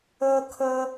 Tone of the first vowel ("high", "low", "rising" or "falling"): high